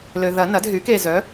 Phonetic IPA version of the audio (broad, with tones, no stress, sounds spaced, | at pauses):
l ø˨ ð ɐ˨˩˦ n ɐ˩˥ d ɦ y˩˥ k e˨ z œ˩˥